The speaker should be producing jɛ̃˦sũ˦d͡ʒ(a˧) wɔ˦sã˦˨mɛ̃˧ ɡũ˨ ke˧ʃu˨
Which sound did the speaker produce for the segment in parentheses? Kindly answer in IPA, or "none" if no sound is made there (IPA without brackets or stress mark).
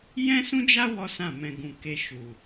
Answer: a˦